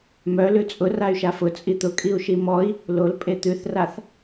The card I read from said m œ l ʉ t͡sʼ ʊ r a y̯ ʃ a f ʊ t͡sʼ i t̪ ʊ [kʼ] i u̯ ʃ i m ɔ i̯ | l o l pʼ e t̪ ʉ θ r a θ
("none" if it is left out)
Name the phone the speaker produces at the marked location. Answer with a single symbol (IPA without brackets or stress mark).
kʼ